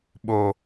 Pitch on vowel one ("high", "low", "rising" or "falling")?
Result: low